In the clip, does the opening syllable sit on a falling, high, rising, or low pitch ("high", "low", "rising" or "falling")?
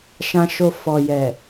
low